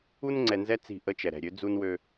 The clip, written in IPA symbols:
u˦ n ŋ͡ǀ ɛ˨ n z ɛ˦ t͡s i̤˦˨ ʔ ə˦ t͡ʃ ɛ˨ ɾ ɛ̤˨ ɾʲ ø˨˦ d͡z u˦ n w ø˦

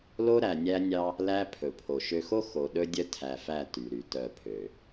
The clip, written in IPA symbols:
l o˦ ɾ æ˨ nʲ æ˦ nʲ ɑ˦ | l æ˦ pʰ ɵ˨ pʰ o˨ ʃ ø˨ x o˦ x o˨ ɗ ɵ˦ dʲ œ˦ tʰ æ˨ f æ˦˨ t y˨ ɾ y˨ t œ˦˨ pʰ ø˨

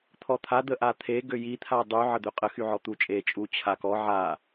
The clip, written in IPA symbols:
t̪ʰ ɔ t̪ʰ a d̪ ə ʔ a t̪ʰ e ɡ ø j i t̪ʰ a dˤ y ʕ ə d̪ ø qʼ ə x y ʕ ɔ t̪ u t͡ʃʼ e t͡ʃʼ u t͡ɕʰ a k ɔ ʕ a

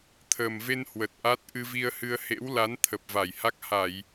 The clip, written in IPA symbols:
t̪ʰ əː˨˩ m v e˧ n h w ə˨˩ t̚ ʔ a˦˥ t̚ ʔ ɨ˧ v i˧ ə̯ h ɨ˧ ə̯ h ḛ˧˥ w l a˨˦ n t̪ʰ ə˨˩ p̚ v a˧˩ j h a˦˥ k̚ h a˧˩˨ j

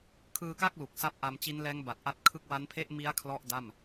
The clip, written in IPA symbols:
kʰ ɯː˧ k a˥˩ k̚ l u˨˩ k̚ s a˦˥ p̚ ʔ a˧ m t͡ɕ i˦˥ n l ɛː˦˥ ŋ b a˨˩ t̚ ʔ a˦˥ t̚ kʰ ɯ˥˩ k̚ w a˦˥ n pʰ e˥˩ ʔ m i˦˥ a̯ kʰ l ɔ˥˩ ʔ d a˥˩ m

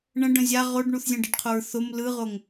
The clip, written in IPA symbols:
ɳ ə̃ ɖ ə̃ zʲ a ʁ o ɖ ɳ u θ zʲ ə̃ ɖ ə ɖ qʰ o ɹ θ o m l ɯ ʁ o ŋ

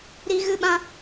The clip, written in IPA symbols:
ɾ i˦ ɣ ɨ˦ ɓ ã˦

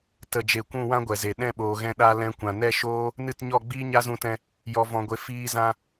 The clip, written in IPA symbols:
t ə˨ d͡ʒ e˨ kʷ ũ˦˨ w ã˦ ɡʷ ɛ˨ z e˨ ɗ ɛ̃˦˨ ɓ oː˨ ɣ ɛ̃˧ ɗ a˦ l ɛ̃˧ kʷ ã˨ n ɛ˦ ʃ oː˦ | n ɨ˦˨ t ɲ ɔ˦˨ ɡ͡b iː˦ ɲ a˦ z ũ˧ t ɛ̃˧ | j ɔ˧ v ɔ̃˧ ɡʷ e˧ f iː˧ z ã˧

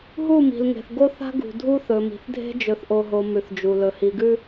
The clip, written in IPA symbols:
ɦ u˦˨ m i̤˨ l ŋ e̤˨ θ ɡ o˦ θ a̤˦ ɡ ṳ˨ dʱ u˦ θ ɵ˨ m i̤˨ θ dʱ e̤˦ d͡ʒ ɵ˨ θ ʔ o˨ ɦ o˨ m ʉ˨ θ d͡ʒ u˨ l ɵ˨ h i˨ ɡ ʉ˦

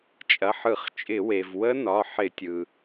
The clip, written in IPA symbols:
t͡ʃʼ ɐ˩˧˩ ħ ɯ˧˩˧ χ t͡ʃʼ ɪ˧˩˧ w e˩ v w ə˦˥ n ɒ˩˧˩ ħ ɪ˧˩˧ tʲ ɯ˩

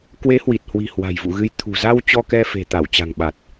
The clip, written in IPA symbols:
k w e˨˦ h w i˨˩ t̚ h w i̤˨˩ h w a̤˨˩ j v ṵ˧˨ ɣ ɨ˨˦ j t̪ʰ ṳ˨˩ z a˧ w t͡ɕ ɔ˧ k ɛ˧ f e̤˨˩ t̪ a˧˩ w t͡ɕ a̤˨˩ ŋ ɓ a˨˩ t̚

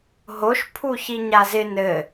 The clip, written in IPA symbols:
ɦ o ʃ pʰ u ç i ɲ a z ɪ n ɘ

